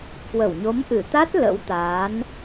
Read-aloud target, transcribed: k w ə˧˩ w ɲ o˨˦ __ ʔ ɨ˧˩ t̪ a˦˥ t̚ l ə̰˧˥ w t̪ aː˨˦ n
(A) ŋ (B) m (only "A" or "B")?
B